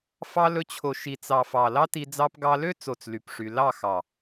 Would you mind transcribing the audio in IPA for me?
f ɑ˧ l ɵ˧ t͡ɕʰ o˧ ʃ i˨ t͡s ɑ˨ f ɑ˨ l ɑ˦ t i˧ d͡z ɑ˧ p ɡ ɑ˧ l ø˦ t͡s o˦˨ t͡s l y˧ p ʂ y˧ l ɑ˦˨ x ɑ˨

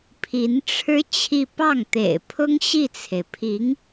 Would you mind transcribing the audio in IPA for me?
pʰ i˧˥ n ʈ͡ʂʰ ɻ̩˥ t͡ɕʰ i˥˧ p ɑ˥˩ ŋ t̪ ḛ˨˩ ɪ̯ pʰ ʊ˥ ŋ ɕ i˥˩ t͡sʰ e˩ ɪ̯ pʰ i˧˥ ŋ

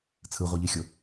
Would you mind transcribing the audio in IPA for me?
t͡sʰ ɯ ʁʷ i ʎ i xʲ o

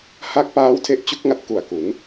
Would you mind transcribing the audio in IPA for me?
h a˦˥ k̚ p aː˦˥ w tʰ e˦˥ ʔ t͡ɕ u˦˥ k̚ ŋ a˦˥ t̚ k u˨˩ a̯ k u˩˦ n

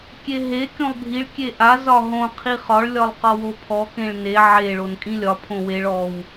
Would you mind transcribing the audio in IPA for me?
kʲ e ɦ e kʲ õ lˠ bʱ i ɭ kʲ e ʔ a z ɒ ɦ õ qʰ i χ ɒ ɭ lʲ ɒ lˠ q ɒ w o pʰ ɔ k ẽ ɭ n e ʕ e ɭ o n kʼ ĩ lʲ ɒ pʰ õ w e ɭ ɔ w

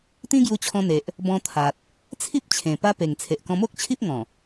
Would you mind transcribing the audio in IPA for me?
t̪ ĩ˦ ɡ j u˧ t͡ɕʰ ɔ̃˧ n̪ e˨ ʔ | b ɔ̃˧ t̪ʰ a˨ t̚ | t͡sʰ i˦ p̚ t͡ɕʰ ẽ˨˩ p a˦ p e˨˩ ŋ t͡sʰ e˨ ʔ k ɔ̃˧ m o˦ k̚ t͡ɕʰ i˦ p̚ ŋ ɔ̃˨˩

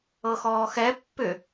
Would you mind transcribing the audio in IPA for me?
ɤ x ɔː x ɛ pː ʏ

